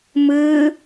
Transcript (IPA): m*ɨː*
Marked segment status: correct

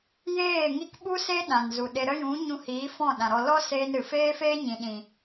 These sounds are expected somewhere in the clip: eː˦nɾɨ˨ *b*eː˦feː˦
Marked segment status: incorrect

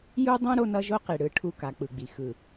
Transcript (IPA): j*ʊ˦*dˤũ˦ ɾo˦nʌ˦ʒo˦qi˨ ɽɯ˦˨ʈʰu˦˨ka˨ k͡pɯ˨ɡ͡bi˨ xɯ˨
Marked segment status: incorrect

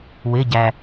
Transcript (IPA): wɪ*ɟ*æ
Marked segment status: correct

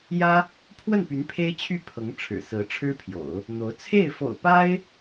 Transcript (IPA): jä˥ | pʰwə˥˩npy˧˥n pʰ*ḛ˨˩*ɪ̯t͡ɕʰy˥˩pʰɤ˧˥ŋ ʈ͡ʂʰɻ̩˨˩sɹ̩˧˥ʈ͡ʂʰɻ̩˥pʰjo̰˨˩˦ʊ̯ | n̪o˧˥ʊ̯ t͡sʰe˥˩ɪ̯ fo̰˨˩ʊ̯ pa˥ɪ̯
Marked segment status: incorrect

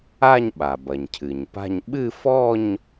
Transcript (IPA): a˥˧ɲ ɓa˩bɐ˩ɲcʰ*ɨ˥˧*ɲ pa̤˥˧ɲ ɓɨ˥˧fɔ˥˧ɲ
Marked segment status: incorrect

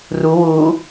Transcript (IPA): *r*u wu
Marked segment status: correct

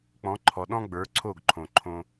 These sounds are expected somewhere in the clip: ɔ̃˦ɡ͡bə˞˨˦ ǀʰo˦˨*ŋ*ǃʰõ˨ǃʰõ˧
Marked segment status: incorrect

